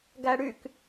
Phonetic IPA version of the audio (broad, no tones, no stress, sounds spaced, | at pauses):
ɡ æ ɽ y k